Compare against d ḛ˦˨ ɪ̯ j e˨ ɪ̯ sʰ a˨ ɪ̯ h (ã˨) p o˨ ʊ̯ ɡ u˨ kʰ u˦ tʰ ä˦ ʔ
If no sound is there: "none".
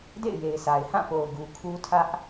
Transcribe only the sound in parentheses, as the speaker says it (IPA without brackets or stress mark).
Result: ã˦˨